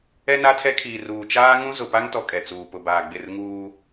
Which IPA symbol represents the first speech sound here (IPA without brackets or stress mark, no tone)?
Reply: ɛ